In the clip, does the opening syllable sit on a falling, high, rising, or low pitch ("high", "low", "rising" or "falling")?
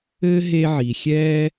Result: high